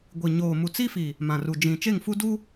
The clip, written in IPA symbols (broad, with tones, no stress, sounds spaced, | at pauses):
ɡʷ i˨ ɲ oː˨ m u˨ t͡s i˦ f i˨ | m ã˨ r u˨ d͡ʒ ĩ˨ t͡ʃ e˦˨ ŋ f u˦ d u˦